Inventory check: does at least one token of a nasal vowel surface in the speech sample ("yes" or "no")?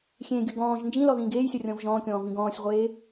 yes